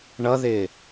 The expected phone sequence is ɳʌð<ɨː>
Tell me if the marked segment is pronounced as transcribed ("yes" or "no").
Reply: no